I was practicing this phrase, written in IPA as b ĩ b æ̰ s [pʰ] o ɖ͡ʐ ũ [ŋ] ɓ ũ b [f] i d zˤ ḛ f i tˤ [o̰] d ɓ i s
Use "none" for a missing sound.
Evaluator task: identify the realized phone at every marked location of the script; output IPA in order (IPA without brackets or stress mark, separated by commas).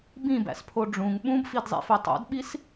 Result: pʰ, ŋ, f, o̰